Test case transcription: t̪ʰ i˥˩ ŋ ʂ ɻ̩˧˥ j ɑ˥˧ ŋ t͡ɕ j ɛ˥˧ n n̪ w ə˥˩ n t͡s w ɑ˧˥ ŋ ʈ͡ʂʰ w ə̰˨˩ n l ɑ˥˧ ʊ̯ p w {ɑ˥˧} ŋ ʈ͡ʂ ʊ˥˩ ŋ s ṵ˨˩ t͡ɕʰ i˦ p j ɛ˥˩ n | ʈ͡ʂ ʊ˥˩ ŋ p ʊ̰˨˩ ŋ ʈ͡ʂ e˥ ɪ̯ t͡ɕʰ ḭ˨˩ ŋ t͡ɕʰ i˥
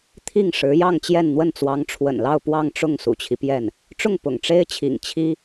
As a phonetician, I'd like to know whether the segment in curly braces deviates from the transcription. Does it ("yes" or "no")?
no